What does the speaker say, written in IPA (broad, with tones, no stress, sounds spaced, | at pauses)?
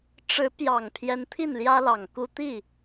ʈ͡ʂ ɻ̩˧˥ p j ɑ˨˩ ŋ pʰ j ɛ˧˥ n t̪ʰ i˥˩ n l j ä˥ l ɑ˨˩ ŋ k u˥ t̪ i˥˩